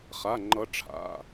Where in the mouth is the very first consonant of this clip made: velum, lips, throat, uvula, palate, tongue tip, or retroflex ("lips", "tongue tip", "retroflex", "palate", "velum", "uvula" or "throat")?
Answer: uvula